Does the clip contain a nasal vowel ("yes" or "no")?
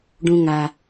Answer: yes